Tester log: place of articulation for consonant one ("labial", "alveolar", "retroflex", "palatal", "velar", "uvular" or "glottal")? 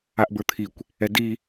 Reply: glottal